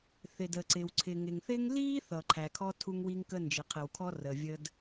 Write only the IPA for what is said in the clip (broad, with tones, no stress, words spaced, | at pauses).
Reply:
θɪ˩də˩ǀɪ˩w ǀʰɪ˩ŋɪ˩ŋθɪ˥ŋ li˥ θʌ˩ǃʰæ˩kʰɔ˥ tʰu˥ŋwi˥ŋkə˥ nd͡ʒɪ˩qʰɪ˩wkʰɔ˥ rə˩vʲə˥d